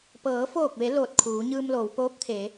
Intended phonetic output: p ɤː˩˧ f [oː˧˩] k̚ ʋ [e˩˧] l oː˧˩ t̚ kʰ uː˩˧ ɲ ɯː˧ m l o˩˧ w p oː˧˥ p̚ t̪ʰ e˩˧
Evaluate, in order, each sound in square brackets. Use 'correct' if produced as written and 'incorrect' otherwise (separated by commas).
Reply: correct, correct